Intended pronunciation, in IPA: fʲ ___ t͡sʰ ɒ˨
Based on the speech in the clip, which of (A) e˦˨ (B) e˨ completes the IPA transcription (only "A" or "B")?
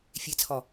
B